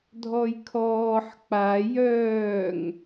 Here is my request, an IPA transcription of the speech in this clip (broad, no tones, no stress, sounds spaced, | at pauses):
dʱ ɔ j kʰ ɔː ħ k͡p a j œː ŋ